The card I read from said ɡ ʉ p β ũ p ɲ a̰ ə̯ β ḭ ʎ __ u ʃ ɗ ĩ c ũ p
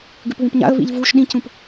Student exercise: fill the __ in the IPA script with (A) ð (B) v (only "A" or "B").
B